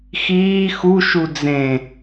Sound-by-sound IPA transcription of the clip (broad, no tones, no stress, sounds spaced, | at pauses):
x iː x u ʃ u d͡z ẽ